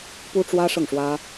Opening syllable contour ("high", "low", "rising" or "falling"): high